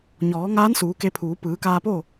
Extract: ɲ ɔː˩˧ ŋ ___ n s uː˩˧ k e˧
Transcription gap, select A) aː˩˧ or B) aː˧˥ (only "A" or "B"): B